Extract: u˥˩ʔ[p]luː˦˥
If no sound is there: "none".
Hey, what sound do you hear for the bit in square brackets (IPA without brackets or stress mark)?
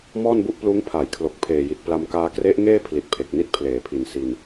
p